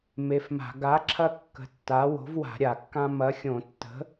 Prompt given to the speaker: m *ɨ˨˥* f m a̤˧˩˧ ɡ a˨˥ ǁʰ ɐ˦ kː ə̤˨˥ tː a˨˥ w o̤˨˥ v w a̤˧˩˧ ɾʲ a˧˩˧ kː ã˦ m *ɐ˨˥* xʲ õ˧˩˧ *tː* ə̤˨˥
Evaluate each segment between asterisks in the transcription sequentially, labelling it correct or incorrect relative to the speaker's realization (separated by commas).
incorrect, correct, correct